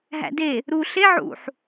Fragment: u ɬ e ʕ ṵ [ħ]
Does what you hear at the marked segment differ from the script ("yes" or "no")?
no